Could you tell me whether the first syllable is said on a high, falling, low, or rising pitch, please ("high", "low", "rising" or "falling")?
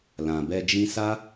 low